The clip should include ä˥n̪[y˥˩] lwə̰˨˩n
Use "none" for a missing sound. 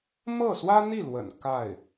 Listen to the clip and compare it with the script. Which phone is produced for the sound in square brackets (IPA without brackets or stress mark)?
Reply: i˥˩